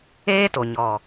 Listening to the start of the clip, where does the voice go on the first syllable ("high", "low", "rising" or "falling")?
high